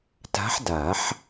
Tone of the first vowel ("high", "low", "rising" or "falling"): rising